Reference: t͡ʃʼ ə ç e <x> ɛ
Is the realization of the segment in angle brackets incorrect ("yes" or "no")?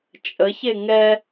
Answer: yes